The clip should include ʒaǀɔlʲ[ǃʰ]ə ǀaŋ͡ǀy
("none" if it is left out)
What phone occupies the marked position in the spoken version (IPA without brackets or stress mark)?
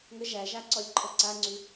ǃʰ